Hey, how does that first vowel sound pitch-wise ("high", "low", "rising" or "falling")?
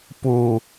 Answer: low